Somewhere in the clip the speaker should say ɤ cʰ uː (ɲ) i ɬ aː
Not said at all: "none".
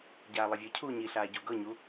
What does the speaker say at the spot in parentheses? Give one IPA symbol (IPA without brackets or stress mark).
ɲ